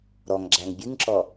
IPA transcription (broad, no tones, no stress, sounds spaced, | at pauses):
ɾ ɔ ŋ ɡ͡ǁ æ ŋ bʲ ɨ ŋ ǁ ɔ